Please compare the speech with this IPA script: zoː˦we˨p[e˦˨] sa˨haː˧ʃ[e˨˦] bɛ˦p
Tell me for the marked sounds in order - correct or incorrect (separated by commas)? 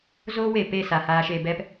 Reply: correct, incorrect